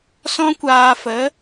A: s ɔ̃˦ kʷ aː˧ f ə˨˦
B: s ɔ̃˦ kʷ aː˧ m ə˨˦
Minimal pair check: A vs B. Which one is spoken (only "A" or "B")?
A